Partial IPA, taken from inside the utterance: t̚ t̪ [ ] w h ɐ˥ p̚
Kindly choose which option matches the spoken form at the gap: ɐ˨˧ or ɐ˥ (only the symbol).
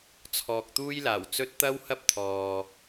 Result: ɐ˥